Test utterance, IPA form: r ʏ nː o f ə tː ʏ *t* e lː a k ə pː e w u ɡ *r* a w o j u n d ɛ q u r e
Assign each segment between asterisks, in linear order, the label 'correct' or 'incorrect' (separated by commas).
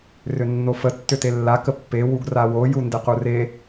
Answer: correct, correct